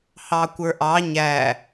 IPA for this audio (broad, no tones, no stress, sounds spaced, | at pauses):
h ɑ kʷ ə˞ ʔ ɑ ɲ æ